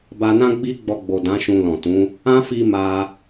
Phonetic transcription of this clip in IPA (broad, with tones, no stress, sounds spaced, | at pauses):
b a˧ n ã˦ ɡ͡b i˦ ɡ͡b ɔ˧ ɡ͡b o˨ d ã˨˦ ʃ ũ˧ l ɔ̃˨ t ũ˨˦ | ã˦ f i˧ m a˧